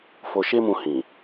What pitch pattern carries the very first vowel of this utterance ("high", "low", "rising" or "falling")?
low